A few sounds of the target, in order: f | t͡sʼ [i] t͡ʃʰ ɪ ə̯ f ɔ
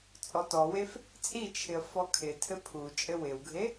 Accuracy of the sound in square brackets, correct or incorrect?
correct